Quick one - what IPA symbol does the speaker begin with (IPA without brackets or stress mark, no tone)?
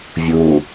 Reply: vʲ